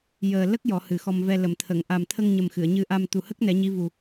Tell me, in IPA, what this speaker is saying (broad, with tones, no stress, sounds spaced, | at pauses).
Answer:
j əː˨˩ l ə˦˥ k̚ j ɔ˨˩˦ h ɨ˨˩ x ɔ˧ m v ɛ˧ l ə˨˩˨ m t̪ʰ ə˨˩˨ ŋ ʔ a˨˩ m t̪ʰ ə˧ ŋ ɲ ə˨˩ m x ɨ˨˩˨ ə̯ ɲ ɨ˧ ʔ a˧ m t̪ u˨˩ h ə˦˥ k̚ n ɛ˨˩˦ ɲ i˧˥ v u˨˩